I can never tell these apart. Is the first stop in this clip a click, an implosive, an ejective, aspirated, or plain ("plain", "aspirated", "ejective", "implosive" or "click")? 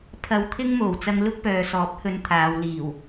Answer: aspirated